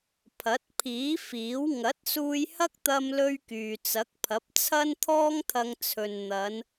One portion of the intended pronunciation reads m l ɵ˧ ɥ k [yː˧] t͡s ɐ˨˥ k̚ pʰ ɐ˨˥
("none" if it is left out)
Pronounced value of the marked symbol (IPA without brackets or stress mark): yː˨